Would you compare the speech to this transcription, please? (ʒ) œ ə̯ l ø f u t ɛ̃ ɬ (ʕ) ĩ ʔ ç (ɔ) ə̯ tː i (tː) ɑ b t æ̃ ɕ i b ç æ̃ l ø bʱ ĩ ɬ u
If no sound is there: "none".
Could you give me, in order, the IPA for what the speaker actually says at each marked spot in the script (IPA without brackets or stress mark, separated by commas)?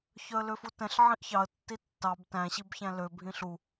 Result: ç, ʕ, ɑ, tː